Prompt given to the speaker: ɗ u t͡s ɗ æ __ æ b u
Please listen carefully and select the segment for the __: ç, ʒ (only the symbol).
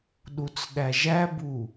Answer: ʒ